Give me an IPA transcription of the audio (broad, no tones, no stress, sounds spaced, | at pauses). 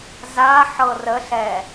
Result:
z a ħ ɤ r ə ɬ ɛ